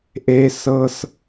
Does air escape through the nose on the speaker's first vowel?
no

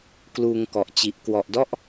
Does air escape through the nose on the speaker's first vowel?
no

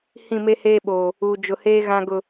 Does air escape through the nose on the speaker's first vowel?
yes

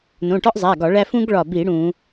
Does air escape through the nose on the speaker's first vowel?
yes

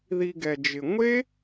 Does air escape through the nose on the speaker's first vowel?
no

